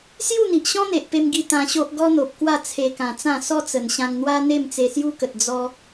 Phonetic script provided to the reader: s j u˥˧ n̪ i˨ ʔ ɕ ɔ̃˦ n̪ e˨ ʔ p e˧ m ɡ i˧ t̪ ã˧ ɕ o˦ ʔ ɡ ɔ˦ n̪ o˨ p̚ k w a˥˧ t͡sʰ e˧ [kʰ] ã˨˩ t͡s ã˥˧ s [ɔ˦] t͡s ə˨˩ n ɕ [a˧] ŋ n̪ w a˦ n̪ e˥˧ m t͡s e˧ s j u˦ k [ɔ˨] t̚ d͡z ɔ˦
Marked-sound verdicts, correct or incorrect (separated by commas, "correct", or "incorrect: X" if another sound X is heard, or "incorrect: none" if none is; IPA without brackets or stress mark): incorrect: k, correct, incorrect: ã˧, incorrect: ə˨